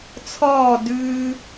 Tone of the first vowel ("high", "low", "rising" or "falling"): falling